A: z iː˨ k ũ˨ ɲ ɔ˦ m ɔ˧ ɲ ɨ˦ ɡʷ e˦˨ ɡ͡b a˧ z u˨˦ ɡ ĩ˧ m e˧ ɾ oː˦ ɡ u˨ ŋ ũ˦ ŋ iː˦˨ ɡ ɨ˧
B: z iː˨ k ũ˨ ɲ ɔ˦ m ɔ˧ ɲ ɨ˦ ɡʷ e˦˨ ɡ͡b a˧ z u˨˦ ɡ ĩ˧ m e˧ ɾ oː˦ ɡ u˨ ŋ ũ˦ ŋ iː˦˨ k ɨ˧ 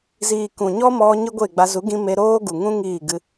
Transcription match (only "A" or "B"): A